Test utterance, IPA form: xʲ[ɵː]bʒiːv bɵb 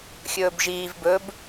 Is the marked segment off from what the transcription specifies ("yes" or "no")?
no